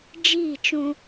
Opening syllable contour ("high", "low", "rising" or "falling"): falling